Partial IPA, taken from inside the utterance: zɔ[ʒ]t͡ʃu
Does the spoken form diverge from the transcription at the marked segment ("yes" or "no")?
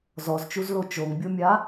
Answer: yes